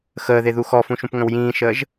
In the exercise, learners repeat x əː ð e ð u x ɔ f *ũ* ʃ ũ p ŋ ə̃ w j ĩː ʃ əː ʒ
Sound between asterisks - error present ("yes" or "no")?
no